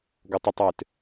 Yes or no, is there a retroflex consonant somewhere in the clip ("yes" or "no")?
no